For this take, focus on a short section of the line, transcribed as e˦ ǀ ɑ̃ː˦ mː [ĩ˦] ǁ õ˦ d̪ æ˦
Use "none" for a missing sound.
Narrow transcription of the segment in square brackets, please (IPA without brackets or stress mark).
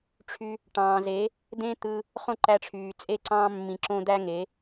ĩ˧